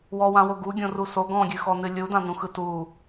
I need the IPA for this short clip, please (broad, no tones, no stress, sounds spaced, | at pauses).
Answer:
w ɔ w ã w o ɡ u ɡʲ õ r u s o ɡ ɔ̃ ɡʲ ɨ x ɔ n ɨ lʲ u d ã n ũ x ɯ t u